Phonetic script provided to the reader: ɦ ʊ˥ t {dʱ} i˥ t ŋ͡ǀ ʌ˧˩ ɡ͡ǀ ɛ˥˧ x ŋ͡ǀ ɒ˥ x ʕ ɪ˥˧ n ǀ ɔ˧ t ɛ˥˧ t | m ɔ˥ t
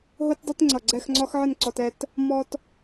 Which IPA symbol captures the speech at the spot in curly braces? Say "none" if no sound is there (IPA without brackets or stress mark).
dˤ